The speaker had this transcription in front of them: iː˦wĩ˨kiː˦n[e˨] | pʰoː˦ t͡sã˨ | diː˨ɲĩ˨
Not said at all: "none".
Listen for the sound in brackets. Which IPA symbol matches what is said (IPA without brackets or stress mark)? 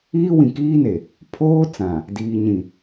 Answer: e˨